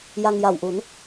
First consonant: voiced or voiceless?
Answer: voiced